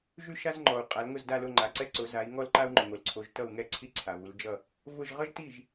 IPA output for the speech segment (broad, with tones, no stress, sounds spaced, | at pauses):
ʒ ʉ˥ ʃ a˥ z ŋ͡ǃ ɔ˨ u̯ qʼ a˨˦ l ŋ ʊ˥˧ z d a˥˧ l ʊ˥˧ ŋ͡ǃ a˨˦ ǀ ɛ˥˧ ǀ ʊ˨˦ z a˨˦ i̯ ŋ ɔ˥˧ l ǃ a˥ u̯ ŋ͡ǃ ʊ˨ ŋ o˨ l ǀʰ o˨˦ ʒ t ʌ˥˧ u̯ ŋ ɛ˥ ǀʰ i˥ ǀʰ a˨ v u˨˦ l d͡ʒ ʌ˥˧ | v ʊ˥˧ ʒ ʁ ʌ˥ ʒ t i˥˩ ʒ